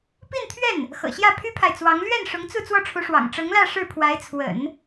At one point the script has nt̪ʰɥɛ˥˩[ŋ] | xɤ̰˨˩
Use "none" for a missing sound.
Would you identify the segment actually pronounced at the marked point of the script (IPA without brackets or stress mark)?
n